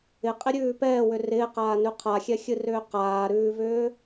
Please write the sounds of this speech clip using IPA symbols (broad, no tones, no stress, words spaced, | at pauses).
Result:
ɪqʼɪɾʲʉː pɛːwʏ rɪːqaːnʉ qʰaxʲɛxʲɨrʏː qaːɾʉːvʏː